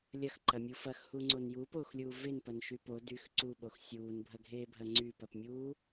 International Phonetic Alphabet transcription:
lʲ ɐ x ǃ ɐ mʲ u f ɐ x h u ŋ͡ǀ o n j uː p oː x lʲ uː v e n p ɐ n ʃ y p o d y x ǀ u ɓ o x sʲ uː n bʱ ɐ ɡʱ eː bʱ ɐ ŋ͡ǀ y p ɐ p mʲ uː

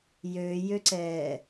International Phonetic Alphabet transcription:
j ø j ø ǀ ɛː

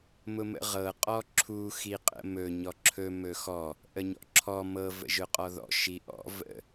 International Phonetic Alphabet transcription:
m ʊ m ə̰ ʁ ɤ qʼ ɔ ǁʰ u x i qʼ ə̰ m ɵ ɲ ɔ ǁʰ ɵ m ɵ x ɔ | ʔ ə ɲ ɔ̰ ǁʰ ɔ m ɤ v ə̰ ʒ ʊ qʼ ɔ ð ɔ̰ ʃ i ʔ ɔ̰ v ə̰

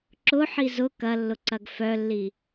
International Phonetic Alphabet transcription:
ǁ ʊ ħ i z ʊ k ɐ lː ʊ ǀ ɐ ɡ f œ lː i

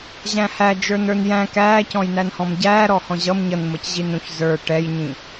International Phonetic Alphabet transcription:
ʑ æ̃ h æ d͡ʒ ə˞ n ə˞ n j æ̃ k æː c ɔ̃ j n æ n h ɔ̃ m ɟ æː ɾ ɔ h ɔ̃ ʑ ʌ m ɲ ʌ n m ʌ c ʑ i n ɾ ũ ç z ə˞ ʈ ɛ j ɲ ĩ

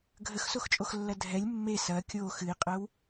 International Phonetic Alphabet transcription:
ɡʱ ə x s o x t͡ʃʼ o x lː ɐ dʱ ɛ lʲ mː e s ɐ kʲ o x ɨ i̯ qʼ ɜ w

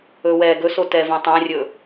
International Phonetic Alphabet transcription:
ɵ w ɛ ɡ ɵ s o t ɛ v ɛ̃ tˤ æ̃ rʲ ɵ

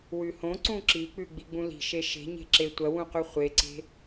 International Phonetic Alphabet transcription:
w ʉ h õ ǀ ũ ǁ i k͡p ʉ ɡ͡b i ɡ͡b ũ l i̤ ʃ e ʃ e̤ ɲ e̤ ǁ e tʷ ɐ w ũ q ʉ χʷ e ǀ e̤

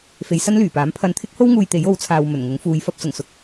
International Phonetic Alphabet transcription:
f e˨˧ j s ɐ˥ n l yː˨˩ p aː˨˥ m pʰ ɐ˧ n t̪ʰ ɪ˥ k̚ h o˥ w ŋ uː˧ j t̪ e˨˥ j o˨˥ w t͡sʰ aː˨ w m ɵ˨˩ n ŋ ʊ˨˥ ŋ f uː˨˧ j f ɐ˧ p̚ s ʊ˨˩ ŋ s ʊ˨ k̚

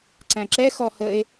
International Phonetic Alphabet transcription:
ǀ æ̃ ǁ ɛ x ɔ h ə e̯

